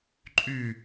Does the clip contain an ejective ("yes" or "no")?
yes